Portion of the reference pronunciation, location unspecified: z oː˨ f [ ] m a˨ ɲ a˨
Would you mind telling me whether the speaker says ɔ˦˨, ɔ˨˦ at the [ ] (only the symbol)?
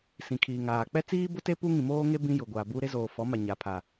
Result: ɔ˨˦